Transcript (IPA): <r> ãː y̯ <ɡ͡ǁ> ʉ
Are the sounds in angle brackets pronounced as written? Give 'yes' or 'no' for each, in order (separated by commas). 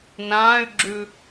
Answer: no, yes